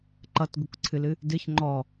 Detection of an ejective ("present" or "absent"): absent